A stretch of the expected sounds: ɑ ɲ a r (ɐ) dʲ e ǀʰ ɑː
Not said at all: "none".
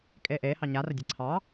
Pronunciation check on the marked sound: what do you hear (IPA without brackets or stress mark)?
ɐ